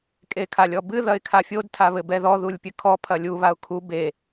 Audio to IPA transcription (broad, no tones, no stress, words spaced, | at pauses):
kʼekʰalʲɔbɨ ðɐɪ̯kʰafʲod tʰaβɘbɛðɔ ðulʲpʲɘkʰɔ pʰɐlʲu βaʊ̯kʰu be